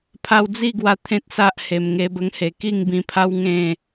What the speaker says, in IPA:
pʰa˧wd͡zi˥˧ɡwa˧ t̪ʰẽ˦t̚sa˦ʔ he˨˩mŋe˧bə˧ŋhe˨˩ ki˥˧ŋbĩ˧pʰa˦w ŋẽ˥˧

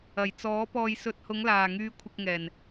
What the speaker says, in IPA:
ɐ˨˩j t͡sɔː˨˥ pɔː˨jsɵ˨t̚hʊ˨˧ŋ laː˨˩ŋyː˨˧ kʷʰɪ˧k̚ŋɛː˨˩n

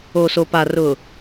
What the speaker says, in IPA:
o˨so˨pa˨ rʊ˨

